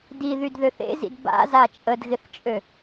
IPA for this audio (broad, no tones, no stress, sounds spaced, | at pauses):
d i ð y d ð ø θ ḛ z ḭ d b a̰ z a t͡ʃʼ ə d ɣ ɪ θ t͡ʃʼ ø